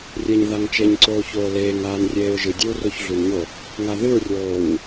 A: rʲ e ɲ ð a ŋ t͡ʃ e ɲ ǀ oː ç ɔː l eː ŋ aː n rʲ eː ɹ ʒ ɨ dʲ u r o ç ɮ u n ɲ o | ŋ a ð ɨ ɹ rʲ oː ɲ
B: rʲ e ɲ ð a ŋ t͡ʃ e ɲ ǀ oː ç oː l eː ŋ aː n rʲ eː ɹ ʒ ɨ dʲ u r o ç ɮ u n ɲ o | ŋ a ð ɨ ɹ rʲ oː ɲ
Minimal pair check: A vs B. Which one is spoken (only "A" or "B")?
B